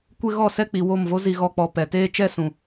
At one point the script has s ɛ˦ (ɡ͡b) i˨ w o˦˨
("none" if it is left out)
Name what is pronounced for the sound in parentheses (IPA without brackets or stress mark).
k͡p